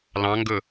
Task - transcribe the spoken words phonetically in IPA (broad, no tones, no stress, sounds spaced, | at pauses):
l ɑ̃ ŋ ɡ ɵ